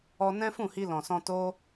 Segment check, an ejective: absent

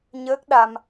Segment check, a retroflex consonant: absent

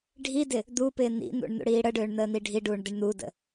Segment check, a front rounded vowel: present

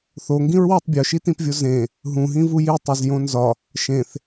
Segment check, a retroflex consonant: absent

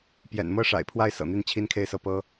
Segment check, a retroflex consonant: present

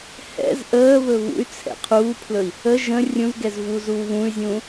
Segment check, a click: absent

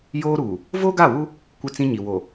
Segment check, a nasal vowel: present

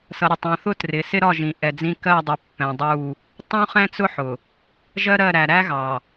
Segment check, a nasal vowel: present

